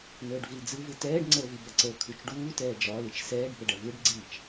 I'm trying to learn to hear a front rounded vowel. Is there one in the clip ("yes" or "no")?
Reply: no